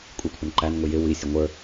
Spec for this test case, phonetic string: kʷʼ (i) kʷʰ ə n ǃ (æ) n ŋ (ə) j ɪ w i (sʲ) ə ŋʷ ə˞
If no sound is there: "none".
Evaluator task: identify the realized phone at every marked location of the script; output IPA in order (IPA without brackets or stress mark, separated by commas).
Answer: i, æ, ʊ, sʲ